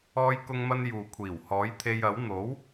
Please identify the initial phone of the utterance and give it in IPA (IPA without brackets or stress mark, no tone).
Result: ɔː